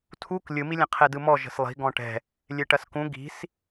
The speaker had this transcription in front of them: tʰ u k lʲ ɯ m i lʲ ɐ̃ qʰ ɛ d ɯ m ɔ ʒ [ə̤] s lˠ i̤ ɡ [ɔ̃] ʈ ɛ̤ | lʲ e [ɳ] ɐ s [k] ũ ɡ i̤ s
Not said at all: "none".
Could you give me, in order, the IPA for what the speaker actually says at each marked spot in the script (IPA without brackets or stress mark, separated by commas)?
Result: ə̤, ɔ̃, ʈ, k